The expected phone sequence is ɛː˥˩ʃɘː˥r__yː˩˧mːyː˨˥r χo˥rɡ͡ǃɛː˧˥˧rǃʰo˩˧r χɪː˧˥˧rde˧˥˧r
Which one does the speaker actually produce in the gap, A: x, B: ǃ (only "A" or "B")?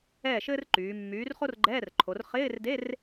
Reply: B